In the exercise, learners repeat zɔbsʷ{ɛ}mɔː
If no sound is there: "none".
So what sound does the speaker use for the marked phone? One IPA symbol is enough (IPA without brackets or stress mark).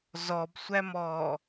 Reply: æ